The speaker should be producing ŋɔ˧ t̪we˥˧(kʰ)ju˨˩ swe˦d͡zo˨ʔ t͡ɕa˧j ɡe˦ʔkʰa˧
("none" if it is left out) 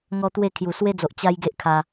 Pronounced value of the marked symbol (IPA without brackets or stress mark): kʰ